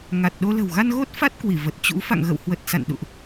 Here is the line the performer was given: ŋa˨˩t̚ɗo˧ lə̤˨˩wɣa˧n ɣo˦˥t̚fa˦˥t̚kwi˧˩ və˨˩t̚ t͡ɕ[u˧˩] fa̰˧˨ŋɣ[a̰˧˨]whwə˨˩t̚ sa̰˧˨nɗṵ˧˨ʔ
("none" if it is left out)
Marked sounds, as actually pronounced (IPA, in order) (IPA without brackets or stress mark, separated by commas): ṵ˧˥, ə̰˧˨